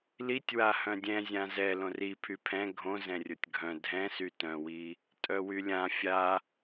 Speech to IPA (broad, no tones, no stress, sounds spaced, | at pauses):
l i tʲ w a h œ̃ dʲ ɛ̃ zʲ ã z ɛ l õ r i pʰ y pʰ ɛ̃ ɡʱ õ z ɛ̃ rʲ o tʲ ɡʱ œ̃ dʱ ɛ̃ s y t œ̃ w i | tʼ œ w y lʲ ã fʲ a